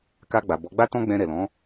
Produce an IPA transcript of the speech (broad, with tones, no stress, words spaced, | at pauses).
ka˧ɡ͡ba˨bɔ˨˦ɡ͡ba˦ tɔ̃˦ɡ͡bɛ̃˧ ɾɛ˨lɔ̃˨˦